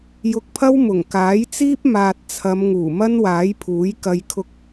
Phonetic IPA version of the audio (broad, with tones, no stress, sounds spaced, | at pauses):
j ʊ˧ k̚ pʰ ɐ˥ w m ʊ˨˩ ŋ k aː˨˥ j t͡s iː˥ p̚ m aː˨ t̚ t͡sʰ ɐ˨˧ m ŋ uː˨˩ m ɐ˥ n w aː˨˥ j pʰ uː˨˥ j k ɐ˧ j kʰ ʊ˧ k̚